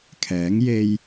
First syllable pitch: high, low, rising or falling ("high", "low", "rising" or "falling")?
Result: rising